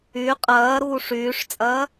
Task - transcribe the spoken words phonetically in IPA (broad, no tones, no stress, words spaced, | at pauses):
y qʼɐːɾuː ʂyːʂt͡sʼɐː